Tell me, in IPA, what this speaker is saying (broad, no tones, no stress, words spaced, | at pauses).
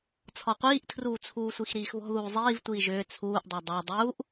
t͡sʰɒqʷiːʔtʰruː t͡sʰuːsʷixɾiːxβɔ̤ ðuːzˤiːv tʷiːʒʏː t͡sʰuːʔdˤa dˤa dˤuːʔ